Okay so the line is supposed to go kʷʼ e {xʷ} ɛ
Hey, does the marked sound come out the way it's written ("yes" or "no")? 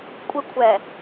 no